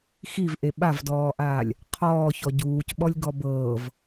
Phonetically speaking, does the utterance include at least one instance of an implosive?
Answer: yes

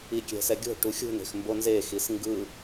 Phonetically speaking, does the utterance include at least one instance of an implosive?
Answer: no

